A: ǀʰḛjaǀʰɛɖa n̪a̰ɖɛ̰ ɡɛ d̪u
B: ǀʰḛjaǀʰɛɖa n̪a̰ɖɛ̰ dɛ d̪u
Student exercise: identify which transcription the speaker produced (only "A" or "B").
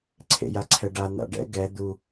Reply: A